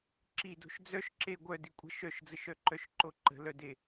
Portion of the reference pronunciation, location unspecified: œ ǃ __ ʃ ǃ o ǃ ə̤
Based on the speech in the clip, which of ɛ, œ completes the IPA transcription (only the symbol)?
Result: œ